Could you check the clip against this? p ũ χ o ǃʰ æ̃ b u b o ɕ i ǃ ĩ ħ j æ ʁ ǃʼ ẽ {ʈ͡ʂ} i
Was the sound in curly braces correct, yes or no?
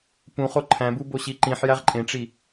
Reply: yes